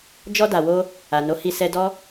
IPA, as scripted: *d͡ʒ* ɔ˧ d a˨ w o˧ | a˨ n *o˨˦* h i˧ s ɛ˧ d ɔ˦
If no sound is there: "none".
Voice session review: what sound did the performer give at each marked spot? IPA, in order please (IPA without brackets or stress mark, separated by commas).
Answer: d͡ʒ, o˨˦